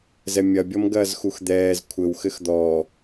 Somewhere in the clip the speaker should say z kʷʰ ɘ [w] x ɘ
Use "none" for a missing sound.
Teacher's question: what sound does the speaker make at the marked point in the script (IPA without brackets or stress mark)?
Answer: w